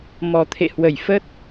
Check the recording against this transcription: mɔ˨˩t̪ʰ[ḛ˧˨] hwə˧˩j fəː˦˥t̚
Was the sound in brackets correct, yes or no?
yes